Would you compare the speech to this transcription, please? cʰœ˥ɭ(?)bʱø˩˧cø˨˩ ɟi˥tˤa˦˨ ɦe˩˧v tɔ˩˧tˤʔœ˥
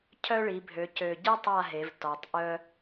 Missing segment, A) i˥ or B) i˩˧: B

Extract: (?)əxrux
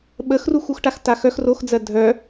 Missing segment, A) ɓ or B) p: A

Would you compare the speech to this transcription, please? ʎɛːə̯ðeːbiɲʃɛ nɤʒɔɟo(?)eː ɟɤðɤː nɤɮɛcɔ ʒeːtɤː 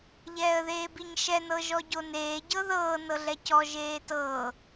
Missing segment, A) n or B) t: A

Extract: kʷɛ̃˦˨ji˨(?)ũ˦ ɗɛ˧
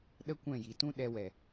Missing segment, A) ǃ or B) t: B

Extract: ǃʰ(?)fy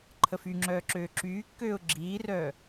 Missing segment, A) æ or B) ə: B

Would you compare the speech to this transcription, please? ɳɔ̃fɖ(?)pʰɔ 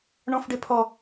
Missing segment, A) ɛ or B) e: B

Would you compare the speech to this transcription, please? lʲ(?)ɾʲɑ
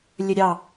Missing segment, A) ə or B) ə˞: A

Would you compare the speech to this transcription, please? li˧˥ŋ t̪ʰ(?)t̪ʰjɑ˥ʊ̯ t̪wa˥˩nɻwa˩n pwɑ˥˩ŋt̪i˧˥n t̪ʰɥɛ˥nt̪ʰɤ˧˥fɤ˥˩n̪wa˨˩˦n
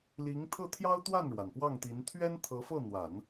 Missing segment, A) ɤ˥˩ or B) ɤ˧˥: A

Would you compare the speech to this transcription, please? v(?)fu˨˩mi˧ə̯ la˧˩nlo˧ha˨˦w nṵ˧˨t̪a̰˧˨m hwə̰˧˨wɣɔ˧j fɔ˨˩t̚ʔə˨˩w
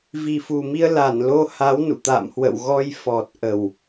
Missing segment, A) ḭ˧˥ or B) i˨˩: B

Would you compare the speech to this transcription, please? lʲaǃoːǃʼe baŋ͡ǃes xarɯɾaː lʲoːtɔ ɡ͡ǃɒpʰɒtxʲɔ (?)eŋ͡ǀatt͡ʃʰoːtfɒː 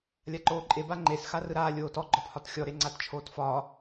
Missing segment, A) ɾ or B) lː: A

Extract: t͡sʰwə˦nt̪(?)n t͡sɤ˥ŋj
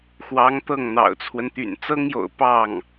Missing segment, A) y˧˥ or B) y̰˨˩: B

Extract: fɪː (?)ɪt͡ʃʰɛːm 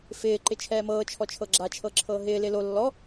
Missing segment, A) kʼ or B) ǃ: B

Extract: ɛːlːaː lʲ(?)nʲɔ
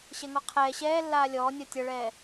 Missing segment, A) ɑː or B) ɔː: B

